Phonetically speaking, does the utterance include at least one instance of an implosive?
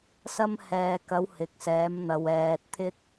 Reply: no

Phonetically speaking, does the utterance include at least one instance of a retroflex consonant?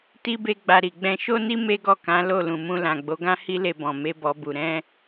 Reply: no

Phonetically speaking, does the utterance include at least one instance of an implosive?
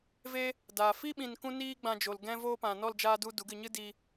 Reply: yes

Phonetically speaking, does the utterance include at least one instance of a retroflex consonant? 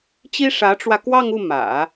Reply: yes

